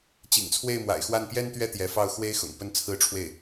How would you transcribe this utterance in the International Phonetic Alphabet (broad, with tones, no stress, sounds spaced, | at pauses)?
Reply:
t͡ɕ ḭ˨˩ ŋ t͡sʰ w e˥˩ ɪ̯ m w a̰˨˩ ɪ̯ x w a˥˩ n p j ɛ˥ n t̪ ɥ ɛ˥ t̪ j ɛ˧˥ f ɑ˥˩ ʊ̯ x w e˥ ɪ̯ x ʊ̰˨˩ ŋ p ə˥ n t͡sʰ ɹ̩˥ ʈ͡ʂʰ w e˥˩ ɪ̯